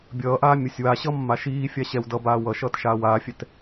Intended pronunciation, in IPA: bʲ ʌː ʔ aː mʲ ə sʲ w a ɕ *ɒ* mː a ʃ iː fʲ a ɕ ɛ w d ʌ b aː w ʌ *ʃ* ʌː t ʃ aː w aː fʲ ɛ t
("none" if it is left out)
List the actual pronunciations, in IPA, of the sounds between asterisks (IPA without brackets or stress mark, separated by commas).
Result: ʌ, ʃ